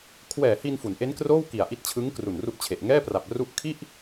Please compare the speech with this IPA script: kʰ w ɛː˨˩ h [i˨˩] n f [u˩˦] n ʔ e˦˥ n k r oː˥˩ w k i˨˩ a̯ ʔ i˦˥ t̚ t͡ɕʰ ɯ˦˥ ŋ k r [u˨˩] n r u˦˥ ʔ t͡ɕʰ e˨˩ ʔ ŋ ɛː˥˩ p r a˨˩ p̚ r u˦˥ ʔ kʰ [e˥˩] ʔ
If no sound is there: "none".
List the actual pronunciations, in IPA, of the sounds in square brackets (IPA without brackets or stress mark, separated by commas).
i˧, u˩˦, u˨˩, i˥˩